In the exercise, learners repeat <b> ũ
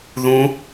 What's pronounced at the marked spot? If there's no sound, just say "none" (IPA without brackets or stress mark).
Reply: ð